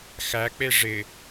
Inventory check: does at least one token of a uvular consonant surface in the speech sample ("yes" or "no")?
no